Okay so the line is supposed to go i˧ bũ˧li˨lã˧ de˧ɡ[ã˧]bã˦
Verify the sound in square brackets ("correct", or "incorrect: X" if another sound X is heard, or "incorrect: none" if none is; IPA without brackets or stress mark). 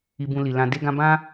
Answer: correct